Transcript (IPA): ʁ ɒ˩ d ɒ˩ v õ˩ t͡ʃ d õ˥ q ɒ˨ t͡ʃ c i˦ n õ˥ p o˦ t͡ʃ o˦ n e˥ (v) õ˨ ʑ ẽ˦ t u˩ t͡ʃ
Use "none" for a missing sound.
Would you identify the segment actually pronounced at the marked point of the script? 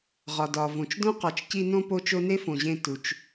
f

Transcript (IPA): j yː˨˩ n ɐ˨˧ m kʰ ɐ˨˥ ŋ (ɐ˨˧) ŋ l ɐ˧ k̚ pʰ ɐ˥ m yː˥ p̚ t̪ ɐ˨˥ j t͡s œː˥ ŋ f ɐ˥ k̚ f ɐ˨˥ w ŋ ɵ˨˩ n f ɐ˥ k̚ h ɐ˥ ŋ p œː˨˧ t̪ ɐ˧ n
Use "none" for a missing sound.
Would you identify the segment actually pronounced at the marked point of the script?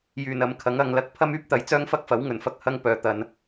ɐ˨˧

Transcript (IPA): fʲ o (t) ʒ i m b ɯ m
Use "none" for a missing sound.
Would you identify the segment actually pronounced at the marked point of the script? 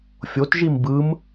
t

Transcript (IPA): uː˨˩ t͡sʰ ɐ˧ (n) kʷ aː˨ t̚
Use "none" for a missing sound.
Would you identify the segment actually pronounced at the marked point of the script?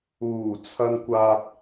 n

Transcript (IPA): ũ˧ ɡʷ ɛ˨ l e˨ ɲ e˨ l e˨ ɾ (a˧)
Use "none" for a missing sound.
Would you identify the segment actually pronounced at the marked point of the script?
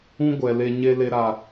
a˨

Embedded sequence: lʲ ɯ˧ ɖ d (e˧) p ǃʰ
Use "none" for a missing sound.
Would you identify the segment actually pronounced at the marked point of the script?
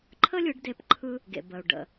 e˧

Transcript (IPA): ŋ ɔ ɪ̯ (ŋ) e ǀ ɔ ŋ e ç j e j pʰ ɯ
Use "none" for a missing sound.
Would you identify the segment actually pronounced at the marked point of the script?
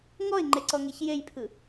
ŋ͡ǃ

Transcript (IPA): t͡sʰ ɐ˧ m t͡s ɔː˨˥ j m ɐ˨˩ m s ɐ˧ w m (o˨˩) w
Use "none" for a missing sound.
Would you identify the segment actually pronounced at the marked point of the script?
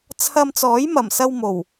o˨˩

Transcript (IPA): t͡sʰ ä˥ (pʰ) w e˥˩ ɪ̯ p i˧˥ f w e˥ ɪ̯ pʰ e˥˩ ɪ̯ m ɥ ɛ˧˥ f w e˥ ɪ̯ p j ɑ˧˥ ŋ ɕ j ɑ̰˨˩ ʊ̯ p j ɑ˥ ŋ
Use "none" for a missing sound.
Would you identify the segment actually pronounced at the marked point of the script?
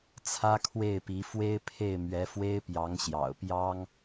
kʰ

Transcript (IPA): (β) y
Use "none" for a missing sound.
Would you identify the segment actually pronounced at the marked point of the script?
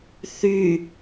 θ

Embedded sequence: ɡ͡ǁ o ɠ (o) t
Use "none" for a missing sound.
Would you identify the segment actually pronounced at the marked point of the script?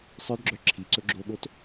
o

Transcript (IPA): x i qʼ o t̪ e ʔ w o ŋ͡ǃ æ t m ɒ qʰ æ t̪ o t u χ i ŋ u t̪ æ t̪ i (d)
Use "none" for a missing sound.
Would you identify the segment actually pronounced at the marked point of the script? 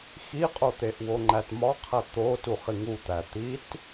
t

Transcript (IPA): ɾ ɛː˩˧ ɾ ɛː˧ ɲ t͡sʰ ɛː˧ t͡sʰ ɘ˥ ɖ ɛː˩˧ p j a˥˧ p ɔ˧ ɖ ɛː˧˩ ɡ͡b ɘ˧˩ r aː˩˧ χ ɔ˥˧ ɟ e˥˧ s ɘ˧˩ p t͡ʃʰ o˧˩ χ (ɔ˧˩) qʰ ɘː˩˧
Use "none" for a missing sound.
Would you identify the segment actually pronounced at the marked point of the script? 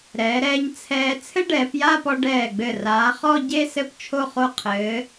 o˧˩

